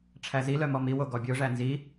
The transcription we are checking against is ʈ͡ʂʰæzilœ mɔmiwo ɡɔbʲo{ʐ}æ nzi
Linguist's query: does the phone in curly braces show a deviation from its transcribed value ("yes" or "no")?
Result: no